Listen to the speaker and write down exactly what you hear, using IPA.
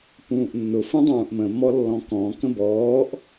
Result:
p ũː ʔ nː ʊ f ũ dˤ ũː ʔ m ə̃ m ɔ lː ɔ̃ k ɔ̃ k ə̃ b ɔː ʔ

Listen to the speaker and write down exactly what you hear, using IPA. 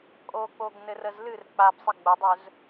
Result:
kʼ o k͡p o ɡ n ɘ r ə z l ɨ r k͡p a b sˤ ɨ ɡ͡b ə dˤ ɵ z

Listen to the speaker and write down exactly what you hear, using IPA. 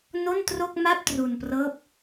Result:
n o˥˩ n t r o˥˩ k̚ m a˥˩ p̚ t r u˧ n p r ɤː˦˥ p̚

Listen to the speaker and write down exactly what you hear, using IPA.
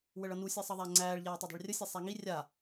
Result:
w ə ɭ ʌ n u sʲ ɛ sˤ ʌ ðˤ æ ŋ͡ǀ æː ɭ ʎ æː tˤ ø dˤ ɛ̤ ɭ rʲ ə sʲ ɛ sˤ æ ŋ i rʲ a

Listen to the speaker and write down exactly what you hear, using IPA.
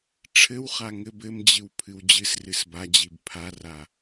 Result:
ʈ͡ʂʰ ɘ w χ a ŋ ɘ b ɘ m d͡ʑ ɨ w pʰ ɨ w d͡ʑ ɨ s r ɨ s b a d͡ʑ i b pʰ a r a

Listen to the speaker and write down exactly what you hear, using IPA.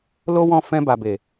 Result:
l o˦ w ɔ̃˦˨ f ɛ̃˧ b a˨ b e˨

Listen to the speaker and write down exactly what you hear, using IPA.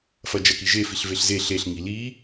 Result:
f ɐ d͡ʒ ɐ k i ʒ e f i ɬ v e ɬ z e ɬ e ɬ ŋ i l i

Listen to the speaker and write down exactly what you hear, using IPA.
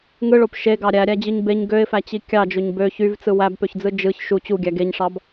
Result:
ŋ ɯ ɭ o p ʃ e ɡ ɑ ɾʲ æ ɾʲ æ d͡ʑ ɯ ɲ b e ɲ ɡ ø ɪ̯ f æ t͡ɕ i kʲ ɑ d͡ʒ o ɲ b ø ç y v t͡s ɯ w æ b p ø ç d͡z ɯ d͡ʒ ɯ ç ʃ u t͡ɕ u ɡʲ æ ɡ e ɲ ʂ ɑ b

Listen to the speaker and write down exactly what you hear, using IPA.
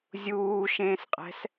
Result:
zʲ uː ʃ ẽː s qʼ ɛ̤ s

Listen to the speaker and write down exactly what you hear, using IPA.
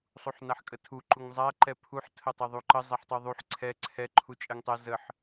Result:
sˤ u ħ n a ħ kʼ ə tʰ u ǃ u ŋ zˤ a ǃ ɛ pʰ u ħ tʰ ə tˤ ɛ ðˤ u ǃ ə zˤ ɛ ħ tˤ u ðˤ u ħ ǀʰ ɛ ǀʰ ɛ ǃʰ u t͡ʃʼ ɛ ŋ tˤ ɛ z ə ħ

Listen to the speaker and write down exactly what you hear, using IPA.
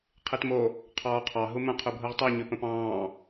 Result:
qʰ i t m o | qʰ ɔː qʰ ɑ ɦ u m ə̃ qʰ ʉ bʱ u ʁ tˤ i ɲ ʉ p ə̃ p ɑ̃ː

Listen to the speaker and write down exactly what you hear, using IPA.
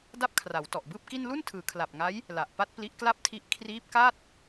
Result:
d a˥˩ p̚ kʰ r a˩˦ w t ɔ˨˩ ʔ b ɯː˥˩ p̚ k i˥˩ n l u˥˩ n tʰ ɯː˩˦ kʰ l a˨˩ p̚ ŋ a˦˥ j | l a˨˩ ʔ p a˥˩ t̚ p l i˦˥ ʔ k l a˥˩ p̚ tʰ i˦˥ ʔ kʰ r iː˦˥ p̚ k a˥˩ t̚

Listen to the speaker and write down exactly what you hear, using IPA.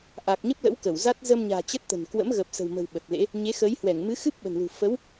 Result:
ʔ a˨˩ k̚ ɲ ə˦˥ p̚ l ə̰˧˥ w k ə˧˩ w z a˦˥ t̚ z əː˧ m ɲ a̤ː˨˩ t͡ɕ ə˦˥ t̚ t̪ ə̤˨˩ n k w ə̰˧˥ m ɣ ə˨˩ p̚ s ə̤˨˩ w m ə̤˨˩ w ɓ ə˨˩ t̚ l ḛ˧˥ | ɲ e˨˦ x əː˨˦ j h w ɛ˧˩ ŋ m ɨ˨˦ x ɨ˦˥ p̚ ɓ ə̤˨˩ n l ṳ˨˩ f ə˨˦ w

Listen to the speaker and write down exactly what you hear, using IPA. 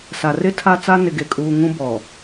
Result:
s a˨ r ɪ˦ tʰ a˦ t͡s a˦ n ɪ˨ ɡ e˨ kʼ uː˨ ŋ ũ˦ b ɔ˨

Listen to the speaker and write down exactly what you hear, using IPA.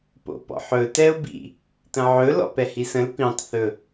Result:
p o̰ p ɔ̰ ħ ɵ t ɛ ʊ̯ b ḭ | t ə̃ ʕ ɵ l ɔ̰ p ɛ h i s ə̃ l p ĩ tˤ θ ɵ

